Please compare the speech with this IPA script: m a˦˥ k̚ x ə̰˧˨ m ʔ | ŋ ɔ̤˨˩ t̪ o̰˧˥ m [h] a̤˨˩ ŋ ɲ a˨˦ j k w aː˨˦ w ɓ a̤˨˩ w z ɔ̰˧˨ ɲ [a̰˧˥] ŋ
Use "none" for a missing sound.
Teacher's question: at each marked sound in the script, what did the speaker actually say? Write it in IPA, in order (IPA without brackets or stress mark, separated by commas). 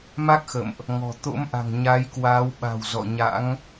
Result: ʔ, a̰˧˥